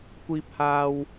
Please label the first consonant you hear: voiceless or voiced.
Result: voiceless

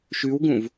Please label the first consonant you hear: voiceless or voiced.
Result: voiceless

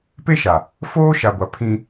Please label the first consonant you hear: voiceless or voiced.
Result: voiceless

